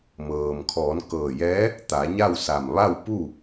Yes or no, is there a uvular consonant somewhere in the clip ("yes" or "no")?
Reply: no